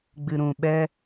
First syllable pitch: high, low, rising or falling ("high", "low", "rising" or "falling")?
low